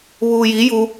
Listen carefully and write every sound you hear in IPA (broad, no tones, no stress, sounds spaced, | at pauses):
β uː j i j u